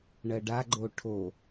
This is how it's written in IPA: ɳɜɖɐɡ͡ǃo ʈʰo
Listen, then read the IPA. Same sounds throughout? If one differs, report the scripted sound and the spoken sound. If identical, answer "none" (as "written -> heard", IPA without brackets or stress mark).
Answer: ɐ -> a